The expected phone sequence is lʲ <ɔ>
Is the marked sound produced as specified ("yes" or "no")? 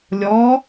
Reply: yes